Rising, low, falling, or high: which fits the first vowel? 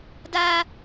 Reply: high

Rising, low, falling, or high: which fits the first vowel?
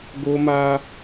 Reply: high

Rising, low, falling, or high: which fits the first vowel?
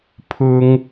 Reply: high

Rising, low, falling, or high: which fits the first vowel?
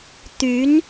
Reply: rising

